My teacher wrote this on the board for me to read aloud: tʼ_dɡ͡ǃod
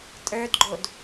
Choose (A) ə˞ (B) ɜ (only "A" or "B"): A